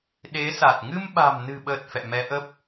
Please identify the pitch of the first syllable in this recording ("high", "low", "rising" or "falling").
rising